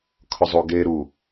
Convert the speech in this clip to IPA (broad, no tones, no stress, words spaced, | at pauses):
kʰʊzˤuɡe ɾu